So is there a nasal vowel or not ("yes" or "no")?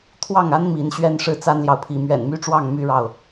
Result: no